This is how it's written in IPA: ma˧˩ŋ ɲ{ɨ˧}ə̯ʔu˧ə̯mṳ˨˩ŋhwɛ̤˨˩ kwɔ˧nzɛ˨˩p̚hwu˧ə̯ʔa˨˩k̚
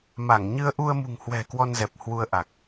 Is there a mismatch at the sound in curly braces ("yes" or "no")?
no